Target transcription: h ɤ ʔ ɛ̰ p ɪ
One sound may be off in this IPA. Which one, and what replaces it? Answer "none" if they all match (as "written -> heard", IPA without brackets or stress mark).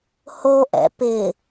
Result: ɤ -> o